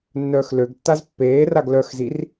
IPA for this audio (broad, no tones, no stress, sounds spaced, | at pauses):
nː œː x l ø ɡ tː a z pː eː r a ɡ l œ x z i r